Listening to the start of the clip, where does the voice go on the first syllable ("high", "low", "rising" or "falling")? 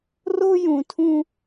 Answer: high